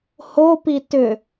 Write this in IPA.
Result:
hopi tʏ

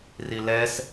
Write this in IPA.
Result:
rilɛs

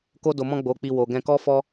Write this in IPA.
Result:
ko˧do˨mɔ̃˧ ɡ͡bo˨k͡pi˨ wo˨ɡɛ̃˧ kɔ˦fɔ˦

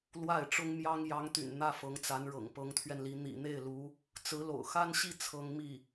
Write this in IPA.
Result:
lwa˥˩ɪ̯ʈ͡ʂʊ˥ŋmjɑ˥ŋ jɑ˧˥ŋt̪y̰˨˩n n̪ä˥fɤ˧˥ŋt͡sa˧˥n ɻɤ̰˨˩ŋpɤ˧˥ŋt̪ʰɥɛ˧nli˧˥ n̪ḭ˨˩n̪e˥˩ɪ̯lu˧˥ | t͡sɹ̩˧˥lo̰˨˩ʊ̯xa˥nɕi˥˩ t͡sʰɤ˥ŋ mi˥˩

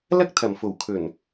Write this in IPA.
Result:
lɐ˥k̚ t̪ʰɐ˨˩mfo˨˩wkʰɵ˨˩n

